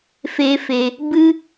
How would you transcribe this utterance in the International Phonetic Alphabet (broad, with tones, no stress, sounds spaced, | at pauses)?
f e˧ f e˧ | b ɨ˦